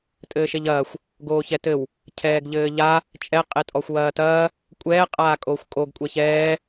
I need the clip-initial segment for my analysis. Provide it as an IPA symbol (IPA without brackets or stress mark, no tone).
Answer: tʼ